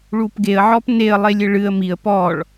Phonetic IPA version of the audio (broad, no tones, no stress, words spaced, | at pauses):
ɭupɡeə̯ ʕɔpneə̯ lˠelʲɘɭɨə̯ miə̯ pɔɭ